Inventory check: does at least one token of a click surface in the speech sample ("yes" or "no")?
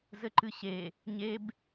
yes